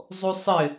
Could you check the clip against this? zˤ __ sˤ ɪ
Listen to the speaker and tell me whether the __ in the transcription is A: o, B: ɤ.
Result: A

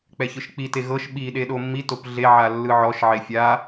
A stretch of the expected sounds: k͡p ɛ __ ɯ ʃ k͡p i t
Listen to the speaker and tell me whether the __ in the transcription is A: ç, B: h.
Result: A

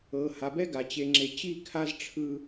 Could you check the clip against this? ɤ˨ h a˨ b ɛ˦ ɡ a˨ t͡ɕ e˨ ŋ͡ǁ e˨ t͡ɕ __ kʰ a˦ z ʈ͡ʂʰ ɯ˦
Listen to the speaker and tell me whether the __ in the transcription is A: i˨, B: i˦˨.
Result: B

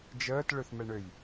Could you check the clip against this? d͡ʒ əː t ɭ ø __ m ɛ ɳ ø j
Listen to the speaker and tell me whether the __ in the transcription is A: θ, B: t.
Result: A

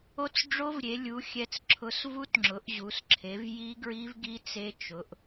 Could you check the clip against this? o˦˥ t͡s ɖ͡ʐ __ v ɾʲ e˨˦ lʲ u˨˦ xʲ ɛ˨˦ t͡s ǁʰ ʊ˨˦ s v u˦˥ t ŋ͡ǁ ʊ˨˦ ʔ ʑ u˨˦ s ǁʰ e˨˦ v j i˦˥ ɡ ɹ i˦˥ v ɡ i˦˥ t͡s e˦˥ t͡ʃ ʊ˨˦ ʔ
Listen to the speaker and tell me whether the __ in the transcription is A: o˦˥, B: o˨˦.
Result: A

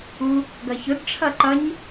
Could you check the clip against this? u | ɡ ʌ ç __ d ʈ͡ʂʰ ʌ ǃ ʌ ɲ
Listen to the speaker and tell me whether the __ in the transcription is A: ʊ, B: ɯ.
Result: A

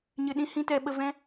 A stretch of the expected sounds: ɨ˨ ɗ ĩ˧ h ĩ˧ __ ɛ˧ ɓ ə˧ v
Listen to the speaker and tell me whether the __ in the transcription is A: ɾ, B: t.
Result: B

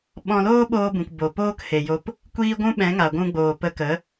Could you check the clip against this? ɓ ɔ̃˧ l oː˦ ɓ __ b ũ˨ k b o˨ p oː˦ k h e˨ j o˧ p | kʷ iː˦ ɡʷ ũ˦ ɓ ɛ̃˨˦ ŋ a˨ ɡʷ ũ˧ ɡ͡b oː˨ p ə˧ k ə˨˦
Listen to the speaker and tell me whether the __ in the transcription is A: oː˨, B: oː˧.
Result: B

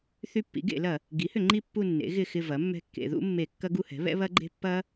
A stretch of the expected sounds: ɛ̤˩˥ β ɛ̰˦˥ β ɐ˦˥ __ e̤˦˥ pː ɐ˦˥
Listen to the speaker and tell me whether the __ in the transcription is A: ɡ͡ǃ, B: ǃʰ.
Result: A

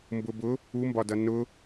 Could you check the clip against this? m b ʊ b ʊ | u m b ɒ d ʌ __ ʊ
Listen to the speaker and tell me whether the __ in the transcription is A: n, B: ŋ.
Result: A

